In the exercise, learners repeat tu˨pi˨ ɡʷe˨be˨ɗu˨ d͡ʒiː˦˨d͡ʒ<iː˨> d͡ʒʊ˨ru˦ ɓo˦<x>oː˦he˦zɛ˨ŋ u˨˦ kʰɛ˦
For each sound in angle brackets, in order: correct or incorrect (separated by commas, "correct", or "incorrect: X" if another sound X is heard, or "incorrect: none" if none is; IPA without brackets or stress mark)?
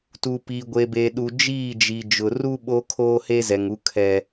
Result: incorrect: i˨, incorrect: kʰ